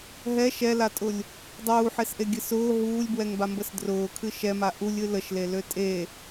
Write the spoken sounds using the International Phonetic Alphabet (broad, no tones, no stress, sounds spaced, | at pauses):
ɦ ɛ ʃ ɛ l a tʼ ʊ lʲ | dˤ uː ħ e s ʔ e ɡʲ ɨ s ʊː ɦ uː lʲ b w ɛ ŋ b a m b ə s d r ʊː kʰ ɨ ʃ ɛ m a ʔ u lʲ ɨ l ə ʃ l e l ø tʼ e